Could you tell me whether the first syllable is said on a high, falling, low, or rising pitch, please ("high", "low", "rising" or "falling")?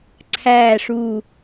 low